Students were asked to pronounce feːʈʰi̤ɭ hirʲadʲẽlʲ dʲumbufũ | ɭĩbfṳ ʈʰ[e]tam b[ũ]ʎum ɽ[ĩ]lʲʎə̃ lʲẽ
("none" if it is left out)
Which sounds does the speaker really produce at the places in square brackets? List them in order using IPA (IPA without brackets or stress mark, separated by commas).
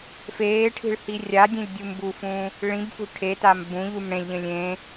e, ũ, ẽ